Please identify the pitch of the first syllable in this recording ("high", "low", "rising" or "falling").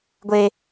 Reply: high